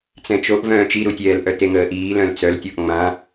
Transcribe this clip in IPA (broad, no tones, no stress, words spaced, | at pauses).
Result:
t͡sɛ̃t͡ʃoʔvœ̃ː t͡ʃiɾutʲɛːlʔœ teŋəːʔiː lœ̃lt͡sœltʲɔʔ ŋ͡mã